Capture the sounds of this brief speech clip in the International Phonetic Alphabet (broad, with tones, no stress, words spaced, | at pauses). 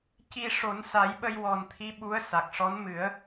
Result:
ci˧ ʂo˨˩˦nsa˨˩˦jɓə˧j wɔ˨˩nt̪ʰi˧˥ ɓu˧˥ə̯ sa˨˩k̚ʂɔ˧˥n mɨ˨˩˦ə̯